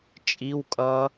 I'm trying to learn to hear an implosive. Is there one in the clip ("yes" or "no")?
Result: no